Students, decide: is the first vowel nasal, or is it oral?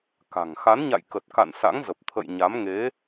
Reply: oral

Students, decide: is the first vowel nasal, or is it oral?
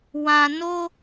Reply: nasal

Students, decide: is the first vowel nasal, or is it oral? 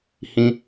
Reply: nasal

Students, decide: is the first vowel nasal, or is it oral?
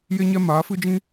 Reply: oral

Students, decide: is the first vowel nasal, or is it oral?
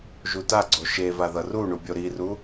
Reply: oral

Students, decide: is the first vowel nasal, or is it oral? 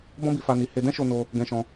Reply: nasal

